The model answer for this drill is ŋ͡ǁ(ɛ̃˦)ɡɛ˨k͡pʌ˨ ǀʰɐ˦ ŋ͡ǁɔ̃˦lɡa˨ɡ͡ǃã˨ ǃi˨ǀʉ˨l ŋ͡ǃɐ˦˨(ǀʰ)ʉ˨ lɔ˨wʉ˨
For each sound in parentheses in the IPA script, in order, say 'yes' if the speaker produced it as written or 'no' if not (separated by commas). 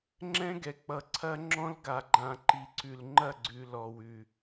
yes, no